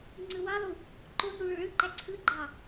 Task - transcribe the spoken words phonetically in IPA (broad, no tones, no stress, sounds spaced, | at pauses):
ŋ͡ǀ ɯ w ɑ lˠ u | ǃ o n u ɭ ø ɭ ɯ ǃ æ ǀʰ ɯ ɡ͡ǃ ɑ